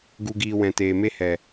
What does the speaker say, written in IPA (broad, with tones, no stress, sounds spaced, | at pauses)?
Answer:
ɡ u˧ ɡ iː˧ w ɛ̃˨ t eː˨ m e˦ h ɛ˨